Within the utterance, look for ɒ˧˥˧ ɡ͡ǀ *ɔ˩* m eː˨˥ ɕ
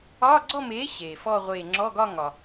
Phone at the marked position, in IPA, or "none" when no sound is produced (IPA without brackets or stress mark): ɔ˥˧